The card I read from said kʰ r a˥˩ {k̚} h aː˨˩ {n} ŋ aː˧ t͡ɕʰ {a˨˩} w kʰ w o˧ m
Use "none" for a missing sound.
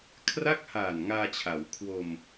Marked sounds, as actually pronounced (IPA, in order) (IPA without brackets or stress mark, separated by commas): k̚, n, a˩˦